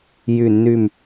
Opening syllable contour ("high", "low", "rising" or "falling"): falling